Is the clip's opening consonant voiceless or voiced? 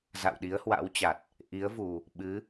voiced